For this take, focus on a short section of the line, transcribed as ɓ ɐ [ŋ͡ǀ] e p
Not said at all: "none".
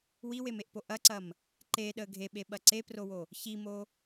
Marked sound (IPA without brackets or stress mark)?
ǀ